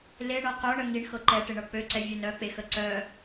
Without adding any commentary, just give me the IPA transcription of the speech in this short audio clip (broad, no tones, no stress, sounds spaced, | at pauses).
l e ɳ ɤ q œ ɳ ə ŋ i ɳ x ɤ ǃ ɛ ʈ e ɳ ɤ k͡p ø ǀ ɛ vʲ ø n œ k͡p e x ə ǀ œ